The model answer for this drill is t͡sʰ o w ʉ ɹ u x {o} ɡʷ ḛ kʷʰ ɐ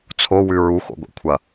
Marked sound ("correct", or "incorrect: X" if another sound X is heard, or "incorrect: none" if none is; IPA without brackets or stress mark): incorrect: o̰